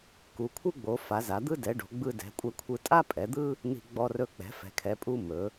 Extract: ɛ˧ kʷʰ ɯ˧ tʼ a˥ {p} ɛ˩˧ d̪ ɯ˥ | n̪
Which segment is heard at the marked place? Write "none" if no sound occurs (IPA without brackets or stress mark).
pʼ